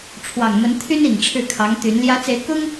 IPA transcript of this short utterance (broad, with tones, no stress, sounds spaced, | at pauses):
ʈ͡ʂʰ w ɑ˨˩ ŋ m ə˧˥ n t̪ʰ y˥ n i˨˩ ŋ ʈ͡ʂʰ ɻ̩˥˩ kʰ ɑ˧˥ ŋ t̪ y˧˥ n l j ä˧˥ t͡s e˧˥ ɪ̯ k ʊ˥ ŋ